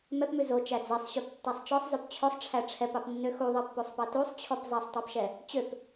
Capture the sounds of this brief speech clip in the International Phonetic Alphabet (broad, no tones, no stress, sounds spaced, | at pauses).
m ɛ p m ʉ z o t͡ʃ æ d͡z ɛ sˤ ɕ ø p tː æ sˤ t͡ʃ ɔ sˤ z ø p t͡ɕʰ ɵ sˤ ʈ͡ʂʰ æ ʈ͡ʂʰ ɛ p ɑ p nː ø x u ðˤ i pː o sˤ p ɑ t u sˤ t͡ɕʰ ɔ p zˤ æ sˤ tˤ æ p ʃ ɛ | t͡ɕ ø p